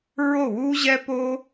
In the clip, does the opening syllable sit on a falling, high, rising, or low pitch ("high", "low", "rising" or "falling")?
falling